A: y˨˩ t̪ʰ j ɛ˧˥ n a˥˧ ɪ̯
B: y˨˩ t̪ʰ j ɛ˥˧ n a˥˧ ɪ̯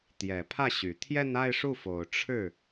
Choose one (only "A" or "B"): B